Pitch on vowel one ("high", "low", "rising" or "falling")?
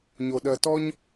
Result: low